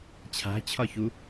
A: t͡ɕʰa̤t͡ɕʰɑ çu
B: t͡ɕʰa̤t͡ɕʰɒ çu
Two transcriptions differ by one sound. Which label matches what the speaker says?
B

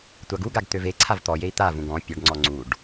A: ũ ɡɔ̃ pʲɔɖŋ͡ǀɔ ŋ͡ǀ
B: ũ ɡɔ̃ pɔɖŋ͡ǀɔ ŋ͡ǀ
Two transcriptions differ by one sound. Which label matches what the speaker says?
A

